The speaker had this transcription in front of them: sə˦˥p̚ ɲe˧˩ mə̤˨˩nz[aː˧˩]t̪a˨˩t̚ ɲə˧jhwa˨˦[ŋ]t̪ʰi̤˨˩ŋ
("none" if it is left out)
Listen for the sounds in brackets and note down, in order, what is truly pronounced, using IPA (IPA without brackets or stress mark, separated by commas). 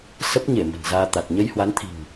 aː˧, n